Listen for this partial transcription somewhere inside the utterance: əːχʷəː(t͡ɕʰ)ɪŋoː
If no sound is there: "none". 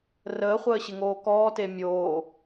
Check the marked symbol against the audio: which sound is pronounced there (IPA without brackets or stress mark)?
ɕ